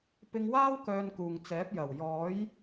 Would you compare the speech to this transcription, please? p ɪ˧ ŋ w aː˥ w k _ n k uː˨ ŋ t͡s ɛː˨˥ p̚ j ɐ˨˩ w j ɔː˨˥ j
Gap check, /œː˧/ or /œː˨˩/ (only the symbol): œː˧